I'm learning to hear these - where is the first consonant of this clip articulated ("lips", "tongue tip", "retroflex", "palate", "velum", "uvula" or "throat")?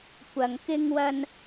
velum